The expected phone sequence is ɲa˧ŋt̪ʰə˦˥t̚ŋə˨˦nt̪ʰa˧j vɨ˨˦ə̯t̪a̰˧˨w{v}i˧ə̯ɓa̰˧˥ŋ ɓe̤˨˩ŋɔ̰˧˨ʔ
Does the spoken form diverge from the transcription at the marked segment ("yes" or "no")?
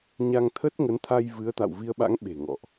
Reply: no